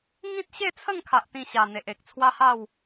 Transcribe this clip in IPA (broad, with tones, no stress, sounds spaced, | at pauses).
ŋ ĩ˦ t̚ ɕ e˥˧ t͡sʰ ə˥˧ ŋ kʰ a˦ ʔ t̪ ĩ˥˧ ɕ a˧ n̪ e˨ ʔ e˨ k̚ t͡sʰ w a˦ h a˥˧ w